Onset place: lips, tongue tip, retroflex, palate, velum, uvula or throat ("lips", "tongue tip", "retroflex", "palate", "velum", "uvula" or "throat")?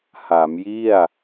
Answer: throat